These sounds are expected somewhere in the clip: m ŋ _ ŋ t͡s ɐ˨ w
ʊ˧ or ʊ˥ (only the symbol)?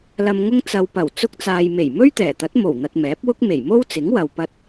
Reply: ʊ˧